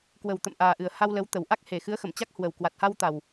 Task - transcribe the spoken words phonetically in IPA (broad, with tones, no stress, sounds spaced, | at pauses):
k w ə˨˩ w t̪ ə̰˧˨ m ʔ aː˨˩ ʔ ɨ˨˩ ə̯ h a˧ w l ə˨˦ w t̪ ə˨˩ w ʔ a˦˥ k̚ h e˨˩ x ɨ˨˦ ə̯ x ə˧˩ m t͡ɕ a˦˥ k̚ h w ə˨˩ w k w a˨˩ t̚ h a˧ w t̪ a˨˩ w